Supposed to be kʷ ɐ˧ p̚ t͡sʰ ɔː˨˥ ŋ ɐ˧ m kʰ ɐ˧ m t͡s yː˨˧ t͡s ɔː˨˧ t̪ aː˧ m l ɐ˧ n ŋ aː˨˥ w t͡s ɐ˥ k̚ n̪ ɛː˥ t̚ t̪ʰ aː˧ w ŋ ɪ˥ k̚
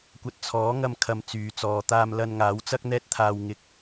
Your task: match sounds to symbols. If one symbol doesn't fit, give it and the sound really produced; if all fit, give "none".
p̚ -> t̚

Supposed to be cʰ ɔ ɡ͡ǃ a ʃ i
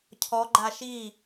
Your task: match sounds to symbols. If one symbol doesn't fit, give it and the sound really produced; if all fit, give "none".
none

